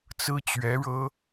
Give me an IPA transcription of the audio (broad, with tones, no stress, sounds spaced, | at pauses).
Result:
t͡s ɹ̩˥ t͡ɕ ɥ ɛ˧˥ ɻ ɤ˥